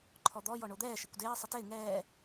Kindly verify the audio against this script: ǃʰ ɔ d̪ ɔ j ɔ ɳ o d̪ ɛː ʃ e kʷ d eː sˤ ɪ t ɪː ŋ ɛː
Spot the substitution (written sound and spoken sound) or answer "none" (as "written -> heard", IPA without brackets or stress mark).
none